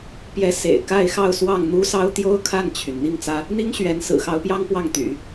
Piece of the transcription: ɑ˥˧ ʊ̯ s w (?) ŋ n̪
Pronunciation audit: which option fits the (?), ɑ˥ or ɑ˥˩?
ɑ˥˩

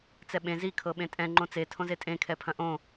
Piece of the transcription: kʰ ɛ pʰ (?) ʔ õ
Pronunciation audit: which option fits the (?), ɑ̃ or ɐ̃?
ɐ̃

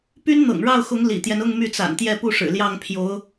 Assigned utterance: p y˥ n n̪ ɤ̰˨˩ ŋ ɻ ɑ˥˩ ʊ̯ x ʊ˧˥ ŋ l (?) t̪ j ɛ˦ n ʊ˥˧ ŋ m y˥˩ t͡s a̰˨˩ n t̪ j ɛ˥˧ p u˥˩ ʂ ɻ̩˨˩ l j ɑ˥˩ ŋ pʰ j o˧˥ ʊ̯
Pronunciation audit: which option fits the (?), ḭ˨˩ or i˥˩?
ḭ˨˩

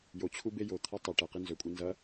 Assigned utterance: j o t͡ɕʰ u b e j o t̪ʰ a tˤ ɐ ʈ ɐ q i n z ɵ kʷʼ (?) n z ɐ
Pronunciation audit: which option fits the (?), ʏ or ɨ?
ɨ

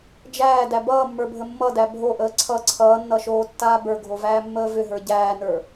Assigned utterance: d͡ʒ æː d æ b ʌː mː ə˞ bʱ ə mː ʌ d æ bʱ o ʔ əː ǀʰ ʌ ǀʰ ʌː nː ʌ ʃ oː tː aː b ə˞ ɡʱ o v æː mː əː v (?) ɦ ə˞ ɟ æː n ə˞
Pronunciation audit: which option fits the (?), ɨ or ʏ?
ʏ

